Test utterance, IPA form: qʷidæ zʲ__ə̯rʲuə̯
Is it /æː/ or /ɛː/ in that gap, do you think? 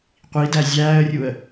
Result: æː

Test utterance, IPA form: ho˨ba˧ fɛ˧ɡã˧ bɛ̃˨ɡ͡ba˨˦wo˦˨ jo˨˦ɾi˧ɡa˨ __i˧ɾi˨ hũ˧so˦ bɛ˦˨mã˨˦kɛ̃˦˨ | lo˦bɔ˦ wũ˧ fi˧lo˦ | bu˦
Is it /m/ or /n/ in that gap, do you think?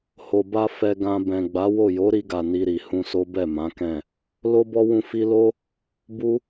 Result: n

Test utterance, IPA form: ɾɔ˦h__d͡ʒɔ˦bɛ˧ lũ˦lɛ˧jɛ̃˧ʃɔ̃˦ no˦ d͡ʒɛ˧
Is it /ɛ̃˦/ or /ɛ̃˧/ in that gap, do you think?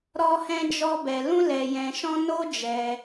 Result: ɛ̃˦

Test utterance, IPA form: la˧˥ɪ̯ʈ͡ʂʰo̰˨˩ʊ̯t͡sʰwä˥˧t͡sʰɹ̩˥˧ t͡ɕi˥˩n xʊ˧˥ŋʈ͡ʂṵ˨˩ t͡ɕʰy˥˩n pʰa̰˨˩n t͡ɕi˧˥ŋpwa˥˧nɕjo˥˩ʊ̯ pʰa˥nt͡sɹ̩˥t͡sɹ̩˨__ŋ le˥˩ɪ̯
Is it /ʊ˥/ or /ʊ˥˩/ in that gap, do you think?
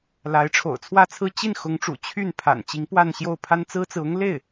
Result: ʊ˥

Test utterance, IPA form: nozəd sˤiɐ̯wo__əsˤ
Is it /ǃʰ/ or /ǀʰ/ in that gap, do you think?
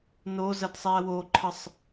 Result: ǃʰ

